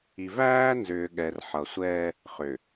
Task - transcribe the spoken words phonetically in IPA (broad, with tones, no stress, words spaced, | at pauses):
i˨væː˦nzʏː˨ ɠɛ˨r ħʌ˨sʷɛː˦ | χʏ˨